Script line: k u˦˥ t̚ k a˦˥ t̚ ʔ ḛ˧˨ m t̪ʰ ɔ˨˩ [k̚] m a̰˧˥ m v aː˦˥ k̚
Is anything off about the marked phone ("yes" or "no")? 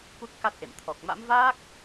no